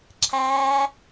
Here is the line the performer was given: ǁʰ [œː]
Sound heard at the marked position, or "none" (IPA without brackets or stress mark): æː